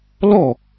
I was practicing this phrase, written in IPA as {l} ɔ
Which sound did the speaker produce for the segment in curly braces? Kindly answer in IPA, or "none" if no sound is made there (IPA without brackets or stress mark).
l